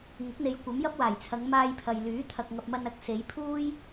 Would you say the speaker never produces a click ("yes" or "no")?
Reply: yes